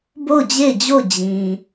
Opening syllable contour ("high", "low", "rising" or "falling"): falling